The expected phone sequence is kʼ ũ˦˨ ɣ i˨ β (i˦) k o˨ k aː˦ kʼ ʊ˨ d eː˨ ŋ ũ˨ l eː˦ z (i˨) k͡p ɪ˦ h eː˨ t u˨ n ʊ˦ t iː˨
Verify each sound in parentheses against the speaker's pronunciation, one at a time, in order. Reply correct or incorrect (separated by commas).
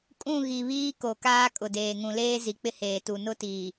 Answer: incorrect, correct